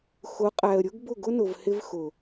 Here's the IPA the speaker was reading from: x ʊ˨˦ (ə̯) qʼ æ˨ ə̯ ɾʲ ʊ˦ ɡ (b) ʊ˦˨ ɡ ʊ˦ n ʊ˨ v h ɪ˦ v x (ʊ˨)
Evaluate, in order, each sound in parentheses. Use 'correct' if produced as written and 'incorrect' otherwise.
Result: incorrect: none, correct, correct

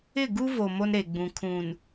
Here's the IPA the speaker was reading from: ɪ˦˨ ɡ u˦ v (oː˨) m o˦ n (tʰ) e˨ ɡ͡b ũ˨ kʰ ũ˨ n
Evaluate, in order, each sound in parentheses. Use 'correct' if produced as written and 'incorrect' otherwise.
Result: incorrect: o˨, incorrect: ɾ

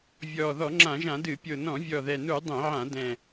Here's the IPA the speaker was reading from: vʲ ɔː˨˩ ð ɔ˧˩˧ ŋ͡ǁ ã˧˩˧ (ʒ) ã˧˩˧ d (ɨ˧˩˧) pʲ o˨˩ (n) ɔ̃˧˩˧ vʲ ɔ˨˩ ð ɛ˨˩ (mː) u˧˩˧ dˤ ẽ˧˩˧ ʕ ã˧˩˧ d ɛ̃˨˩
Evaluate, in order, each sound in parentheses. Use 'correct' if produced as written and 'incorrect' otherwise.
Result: correct, correct, correct, incorrect: n

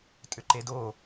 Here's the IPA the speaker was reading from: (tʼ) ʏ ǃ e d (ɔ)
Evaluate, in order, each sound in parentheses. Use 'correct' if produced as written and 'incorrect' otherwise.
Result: correct, incorrect: o

